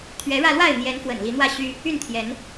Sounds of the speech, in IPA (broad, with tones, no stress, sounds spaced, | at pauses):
t̪ʰ ɥ ɛ˨˦ ɻ ä˧ l w a˥˨ ɪ̯ n̪ j ɛ˨˦ n f w ə̰˨˩ n l i˨˦ n̪ w ä˥˨ ɕ y˦ | y˥˨ n t̪ʰ j ɛ˨˦ n